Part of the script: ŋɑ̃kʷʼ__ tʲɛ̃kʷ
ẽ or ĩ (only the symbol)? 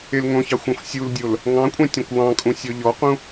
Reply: ẽ